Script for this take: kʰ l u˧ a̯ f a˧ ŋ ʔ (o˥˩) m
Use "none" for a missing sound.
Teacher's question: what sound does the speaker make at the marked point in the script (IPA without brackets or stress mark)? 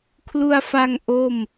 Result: o˥˩